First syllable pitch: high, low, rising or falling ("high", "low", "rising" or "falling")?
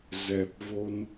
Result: low